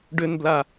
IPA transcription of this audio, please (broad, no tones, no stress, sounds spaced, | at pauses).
ɖ ʏ n b l a